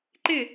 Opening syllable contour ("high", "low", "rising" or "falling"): falling